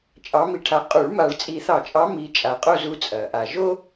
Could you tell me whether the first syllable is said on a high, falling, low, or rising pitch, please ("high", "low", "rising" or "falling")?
rising